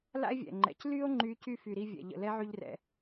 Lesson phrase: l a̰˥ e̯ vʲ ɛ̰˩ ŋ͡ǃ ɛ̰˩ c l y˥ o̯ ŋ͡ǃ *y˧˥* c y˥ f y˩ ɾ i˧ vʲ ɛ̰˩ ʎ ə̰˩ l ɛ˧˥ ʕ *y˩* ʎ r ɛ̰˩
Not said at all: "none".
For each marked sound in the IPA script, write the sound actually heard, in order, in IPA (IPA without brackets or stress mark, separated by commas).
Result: y˧˥, y˧